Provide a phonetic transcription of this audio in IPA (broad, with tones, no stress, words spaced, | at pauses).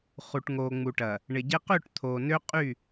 χu˨ʈŋoː˨ŋ͡mu˨ʈɐ˨ | ɳɪ˨ɟɪ˦ qø˦˨ʈ t̪ʰoː˨nø˦ qʼy˦˨